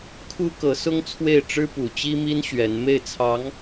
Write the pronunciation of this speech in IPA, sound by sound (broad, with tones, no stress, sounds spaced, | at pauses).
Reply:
kʰ u˥ k ɤ˧˥ s ʊ˥ ŋ t͡sʰ w e˥˩ ɪ̯ ʈ͡ʂ ɻ̩˥ p u˨˩ t͡ɕ i˥ m i˥ n ɕ ɥ ɛ˧˥ n m e˥˩ ɪ̯ t͡sʰ ɑ˧˥ ŋ